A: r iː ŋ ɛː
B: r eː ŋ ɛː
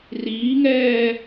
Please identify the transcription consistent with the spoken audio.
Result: A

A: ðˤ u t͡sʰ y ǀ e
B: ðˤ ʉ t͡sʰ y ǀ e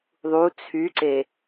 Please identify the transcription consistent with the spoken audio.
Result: A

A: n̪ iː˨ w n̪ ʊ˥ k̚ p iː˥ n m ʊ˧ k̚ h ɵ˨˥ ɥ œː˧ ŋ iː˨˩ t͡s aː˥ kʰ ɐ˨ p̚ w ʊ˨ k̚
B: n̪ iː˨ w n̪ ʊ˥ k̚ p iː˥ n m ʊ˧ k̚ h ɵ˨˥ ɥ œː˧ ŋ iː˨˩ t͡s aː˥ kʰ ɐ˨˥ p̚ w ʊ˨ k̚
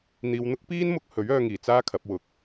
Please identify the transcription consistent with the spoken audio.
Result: B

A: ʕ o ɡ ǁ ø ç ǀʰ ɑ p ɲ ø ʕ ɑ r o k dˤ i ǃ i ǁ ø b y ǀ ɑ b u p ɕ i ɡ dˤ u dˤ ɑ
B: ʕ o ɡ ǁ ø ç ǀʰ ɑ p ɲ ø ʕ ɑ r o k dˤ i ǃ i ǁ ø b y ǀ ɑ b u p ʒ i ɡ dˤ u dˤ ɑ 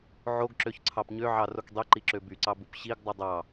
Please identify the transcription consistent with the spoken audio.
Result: A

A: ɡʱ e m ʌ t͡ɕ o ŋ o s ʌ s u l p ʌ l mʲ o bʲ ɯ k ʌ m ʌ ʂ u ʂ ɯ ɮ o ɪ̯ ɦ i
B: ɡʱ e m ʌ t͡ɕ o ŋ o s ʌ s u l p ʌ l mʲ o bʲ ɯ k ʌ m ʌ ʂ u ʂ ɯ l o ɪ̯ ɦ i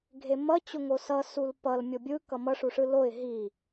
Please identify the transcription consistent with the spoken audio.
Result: B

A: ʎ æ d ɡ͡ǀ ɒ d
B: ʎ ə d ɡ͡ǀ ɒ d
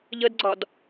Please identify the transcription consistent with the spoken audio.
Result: B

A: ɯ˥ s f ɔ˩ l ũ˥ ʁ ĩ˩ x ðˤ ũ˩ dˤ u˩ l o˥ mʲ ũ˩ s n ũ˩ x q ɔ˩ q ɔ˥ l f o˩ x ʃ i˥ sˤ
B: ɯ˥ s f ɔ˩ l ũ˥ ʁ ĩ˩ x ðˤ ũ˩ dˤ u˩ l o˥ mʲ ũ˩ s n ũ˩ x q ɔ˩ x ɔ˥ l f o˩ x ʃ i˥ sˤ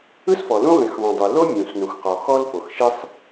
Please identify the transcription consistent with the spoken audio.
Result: B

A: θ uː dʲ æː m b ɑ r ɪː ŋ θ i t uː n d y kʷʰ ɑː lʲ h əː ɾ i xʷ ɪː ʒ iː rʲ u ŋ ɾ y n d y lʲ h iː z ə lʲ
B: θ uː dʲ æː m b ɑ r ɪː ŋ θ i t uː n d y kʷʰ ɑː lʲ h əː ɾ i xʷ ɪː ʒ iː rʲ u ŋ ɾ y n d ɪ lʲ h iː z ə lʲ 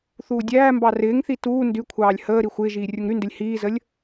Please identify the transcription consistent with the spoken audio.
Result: B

